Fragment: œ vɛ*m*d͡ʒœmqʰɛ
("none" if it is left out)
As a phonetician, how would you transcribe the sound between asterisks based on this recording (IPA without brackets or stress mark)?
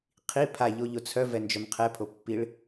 n